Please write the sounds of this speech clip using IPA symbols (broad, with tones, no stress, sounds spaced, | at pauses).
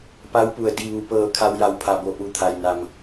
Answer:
p a˧˥ w p u˩ ə̯ d i˧˩ ʋ u˩ p ɤː˧˩ kʰ a˧ w j a˧˩ w pʰ a˧˩ b o˧˩ ʔ u˧˩ t̪ʰ a˩ j n a˩ m